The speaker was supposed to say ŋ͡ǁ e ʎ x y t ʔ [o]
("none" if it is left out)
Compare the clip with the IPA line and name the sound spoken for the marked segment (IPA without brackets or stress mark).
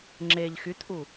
u